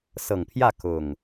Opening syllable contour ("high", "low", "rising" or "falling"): low